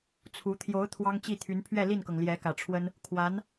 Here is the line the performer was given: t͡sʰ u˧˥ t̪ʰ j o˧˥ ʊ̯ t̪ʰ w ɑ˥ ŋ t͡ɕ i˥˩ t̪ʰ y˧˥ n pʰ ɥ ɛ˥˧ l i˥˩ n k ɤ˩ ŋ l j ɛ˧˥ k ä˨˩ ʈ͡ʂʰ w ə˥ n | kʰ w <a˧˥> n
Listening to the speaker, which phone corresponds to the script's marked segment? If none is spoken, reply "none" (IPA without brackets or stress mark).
a˧˥